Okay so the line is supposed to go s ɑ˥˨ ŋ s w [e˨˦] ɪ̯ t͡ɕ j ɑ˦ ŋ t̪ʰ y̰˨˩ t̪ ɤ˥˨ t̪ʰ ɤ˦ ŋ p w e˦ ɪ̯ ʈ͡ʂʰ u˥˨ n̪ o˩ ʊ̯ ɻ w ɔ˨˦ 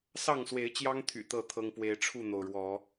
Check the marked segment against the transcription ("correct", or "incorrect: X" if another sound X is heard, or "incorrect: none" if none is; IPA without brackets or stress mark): correct